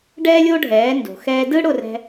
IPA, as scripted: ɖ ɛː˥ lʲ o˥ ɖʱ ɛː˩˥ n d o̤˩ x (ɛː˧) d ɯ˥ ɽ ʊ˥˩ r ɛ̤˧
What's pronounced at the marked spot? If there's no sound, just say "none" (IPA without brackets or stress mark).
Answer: ɛː˧